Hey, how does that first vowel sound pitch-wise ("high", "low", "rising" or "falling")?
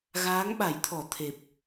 rising